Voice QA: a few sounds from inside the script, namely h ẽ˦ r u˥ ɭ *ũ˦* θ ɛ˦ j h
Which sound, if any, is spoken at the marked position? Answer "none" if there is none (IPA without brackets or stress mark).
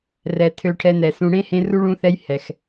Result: ũ˦